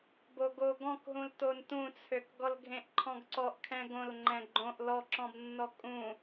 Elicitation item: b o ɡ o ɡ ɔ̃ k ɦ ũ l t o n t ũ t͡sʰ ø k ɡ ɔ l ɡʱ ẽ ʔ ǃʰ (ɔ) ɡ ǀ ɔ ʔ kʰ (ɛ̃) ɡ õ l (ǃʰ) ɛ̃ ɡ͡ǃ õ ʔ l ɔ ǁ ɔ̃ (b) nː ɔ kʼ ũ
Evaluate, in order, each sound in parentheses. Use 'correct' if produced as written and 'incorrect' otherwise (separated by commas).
incorrect, correct, incorrect, correct